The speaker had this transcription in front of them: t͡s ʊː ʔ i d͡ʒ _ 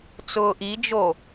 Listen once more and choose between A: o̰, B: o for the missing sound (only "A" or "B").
B